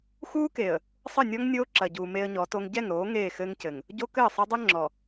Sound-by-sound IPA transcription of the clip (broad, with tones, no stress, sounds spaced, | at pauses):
x uː˦ k e˨ ə̯ | sˤ ɘ˦˨ nʲ ɔ˦ ŋ nʲ oː˦ ǁ ɐ˨ ɟ uː˨ m e˦ ə̯ ɲ ɔ˨˦ t o˦ ŋ ɟ ɛ˦˨ ŋ ɾ oː˨˦ ŋ eː˦˨ x ɘː˦ ŋ c ɘ˨ ŋ | ɟ o˦ k ɘː˦˨ sˤ ɘ˦ dˤ ɘ˦ ŋ͡ǁ ɔ˨